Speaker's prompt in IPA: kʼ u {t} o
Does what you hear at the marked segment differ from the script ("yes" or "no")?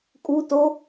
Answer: no